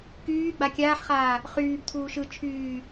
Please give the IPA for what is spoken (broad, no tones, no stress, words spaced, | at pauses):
kyː ɡ͡bakʲaːħχaː | χyːb tʰuːʃɯ t͡ʃʰyː